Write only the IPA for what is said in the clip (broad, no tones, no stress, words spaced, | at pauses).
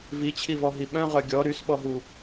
vit͡ɕʰivɔɦi ɓœ̃ʁœ ɡʲɔ ɾysɓɔɦu